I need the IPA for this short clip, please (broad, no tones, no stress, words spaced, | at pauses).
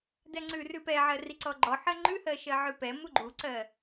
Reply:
dɛŋ͡ǀʉ rʉpɛʕɜri ǀɔɡ͡ǃɔħɜ ŋ͡ǃʉhɜ ʃɜʕʉpɛ muɡ͡ǃuǀɜ